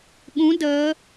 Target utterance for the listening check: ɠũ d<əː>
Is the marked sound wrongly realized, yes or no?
no